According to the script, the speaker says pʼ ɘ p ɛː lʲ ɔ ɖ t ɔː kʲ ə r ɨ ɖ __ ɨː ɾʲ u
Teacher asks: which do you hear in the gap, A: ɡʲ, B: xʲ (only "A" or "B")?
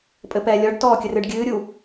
A